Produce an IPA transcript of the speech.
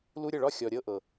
l u˦ ɾʲ ə˦˨ ɭ ɒ˦ xʲ ɔ˨ ɾʲ ɤ˧ ʔ ɤ˨

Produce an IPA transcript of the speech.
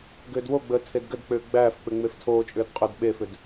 ɡ ʏː d w o ɡ͡b əː tʰ e d ɡ ə d k͡p ʏː ɡ͡b æː f k͡p ʏ ŋ͡m e f tʰ oː t͡ʃʼ ʏː d qʼ ʏ d ɓ e f ʏ d

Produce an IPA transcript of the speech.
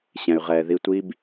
ɕ ɛ̃˨ y̯ ʁ ɛː˨ ð i˧ tʷ i˦ b

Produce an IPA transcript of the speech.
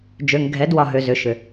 d͡ʒ ø˨ ŋ ɡʱ ɛ˨˦ d w ɒ˨ ɦ ø˨ z ʏ˨ ʃ ʏ˨

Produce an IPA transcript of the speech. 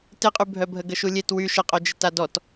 t ɪ qʼ y bʱ œ bʱ ə ɡ ə ʃ u lʲ e t w y ʃ ə qʼ œ d͡ʒ ɪ t a d ɔ t

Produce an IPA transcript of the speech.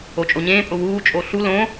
o t͡ʃʼ o ɲ ẽː pʼ ʊ w uː t͡ʃʼ o ɬ u l õ

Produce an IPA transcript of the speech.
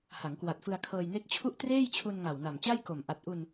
h a˩˦ ŋ k w a˨˩ t̚ f ɯ˧ a̯ kʰ ɤː˧ j n e˦˥ k̚ t͡ɕʰ u˥˩ ʔ t r eː˥˩ j t͡ɕʰ u˧ n ŋ a˨˩ w n a˨˩ m t͡ɕ a˥˩ j k o˨˩ m ʔ a˨˩ t̚ ʔ u˧ n

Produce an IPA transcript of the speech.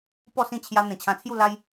p ɔ˥˧ s ĩ˥˧ t͡ɕʰ j a˧ n̪ ẽ˨˩ t͡ɕʰ ã˧ t͡sʰ j u˥˧ l a˦ j

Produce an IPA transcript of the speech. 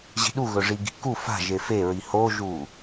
ʑ i̤ ɗ u ɣ ɵ ʐ i ɡ i̤ k u f a̤ ʒ e f e ɹ i h o ʒ u

